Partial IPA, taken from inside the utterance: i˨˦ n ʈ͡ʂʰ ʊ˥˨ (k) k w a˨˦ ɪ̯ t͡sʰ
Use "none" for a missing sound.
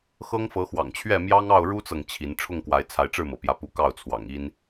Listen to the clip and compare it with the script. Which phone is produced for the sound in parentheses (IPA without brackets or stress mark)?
ŋ